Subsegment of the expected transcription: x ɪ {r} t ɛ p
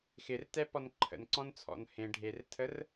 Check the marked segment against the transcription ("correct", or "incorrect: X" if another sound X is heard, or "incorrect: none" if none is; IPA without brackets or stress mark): correct